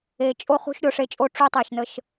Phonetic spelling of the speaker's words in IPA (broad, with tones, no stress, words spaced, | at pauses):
e˨ t͡ʃʼo˦χṳ˦ʃ ɾʲo˨ʂe˦t͡ʃʼo˦ ʈ͡ʂu˦tˤe˨ʃnə˦ʃ